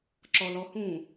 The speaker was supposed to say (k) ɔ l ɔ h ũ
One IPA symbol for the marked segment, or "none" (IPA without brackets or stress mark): ǁ